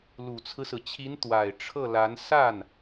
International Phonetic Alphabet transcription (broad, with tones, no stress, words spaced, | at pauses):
lu˨˩t͡sʰɹ̩˦sɹ̩˩t͡ɕʰi˧˥n t̪wa˨˩ɪ̯ ʈ͡ʂʰɤ˥˩la˧˥n sa˥˩n